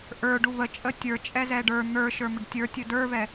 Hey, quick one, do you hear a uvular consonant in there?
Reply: no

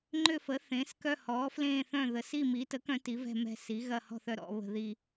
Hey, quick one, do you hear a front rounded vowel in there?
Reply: yes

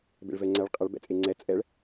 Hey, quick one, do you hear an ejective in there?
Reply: yes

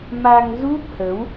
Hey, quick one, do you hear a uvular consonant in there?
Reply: no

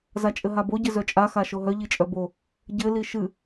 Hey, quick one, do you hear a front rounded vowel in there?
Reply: yes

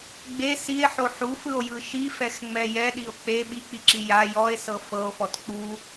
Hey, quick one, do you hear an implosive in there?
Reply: yes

